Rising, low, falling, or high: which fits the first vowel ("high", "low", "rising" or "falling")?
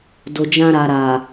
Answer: low